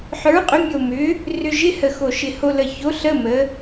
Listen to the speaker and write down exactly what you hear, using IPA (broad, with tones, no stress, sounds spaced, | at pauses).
ħ ə˞˨˥ qʼ ʏ˨˥ mʲ o˧˩ m ʏ˨˥ | r ʏ˧ ʒ ɪ˧˥˧ h ə˧˩ x o˧˩ ʃ ɪ˧˩ h o˧ l ə˧˩ ç o˨˥ ɬ ə˧˥˧ m ə˩˧